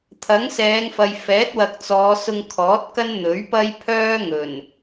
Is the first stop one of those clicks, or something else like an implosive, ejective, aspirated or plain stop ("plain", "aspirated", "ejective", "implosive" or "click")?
aspirated